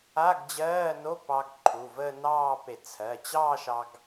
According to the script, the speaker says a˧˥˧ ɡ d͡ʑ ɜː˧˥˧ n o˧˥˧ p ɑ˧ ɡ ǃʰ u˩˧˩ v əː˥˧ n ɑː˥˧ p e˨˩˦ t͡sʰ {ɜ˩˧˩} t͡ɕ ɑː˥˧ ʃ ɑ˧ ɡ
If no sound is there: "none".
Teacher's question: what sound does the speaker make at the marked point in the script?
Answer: ɜ˩˧˩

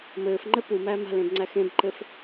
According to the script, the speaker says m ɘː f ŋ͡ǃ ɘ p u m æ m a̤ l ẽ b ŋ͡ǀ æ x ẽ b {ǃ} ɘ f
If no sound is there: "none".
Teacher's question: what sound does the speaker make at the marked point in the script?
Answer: ǃ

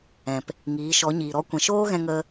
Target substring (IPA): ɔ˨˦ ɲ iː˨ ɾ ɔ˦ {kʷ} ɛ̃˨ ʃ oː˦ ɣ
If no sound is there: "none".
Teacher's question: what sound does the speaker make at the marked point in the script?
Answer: kʷ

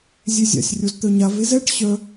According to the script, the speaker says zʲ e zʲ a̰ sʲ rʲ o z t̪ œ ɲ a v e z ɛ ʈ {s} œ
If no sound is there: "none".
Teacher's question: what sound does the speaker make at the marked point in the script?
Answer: ɕ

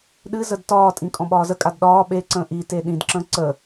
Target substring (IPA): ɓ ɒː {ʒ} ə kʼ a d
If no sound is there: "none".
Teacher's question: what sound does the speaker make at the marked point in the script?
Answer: z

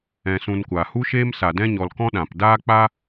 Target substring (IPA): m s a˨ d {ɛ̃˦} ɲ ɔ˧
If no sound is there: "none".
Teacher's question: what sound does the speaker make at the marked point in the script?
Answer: ɛ̃˦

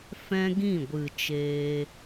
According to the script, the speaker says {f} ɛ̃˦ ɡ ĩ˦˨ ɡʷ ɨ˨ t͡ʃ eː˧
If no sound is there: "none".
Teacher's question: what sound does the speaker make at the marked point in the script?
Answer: f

